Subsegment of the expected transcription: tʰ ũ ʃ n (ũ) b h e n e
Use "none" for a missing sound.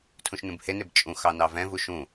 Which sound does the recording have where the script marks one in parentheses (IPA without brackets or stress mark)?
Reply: ũ